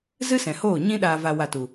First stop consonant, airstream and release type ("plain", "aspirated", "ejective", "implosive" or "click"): implosive